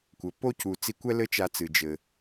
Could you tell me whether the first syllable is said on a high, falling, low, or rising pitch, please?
low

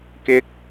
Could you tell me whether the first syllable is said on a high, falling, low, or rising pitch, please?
rising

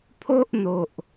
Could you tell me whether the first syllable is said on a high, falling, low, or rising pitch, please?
high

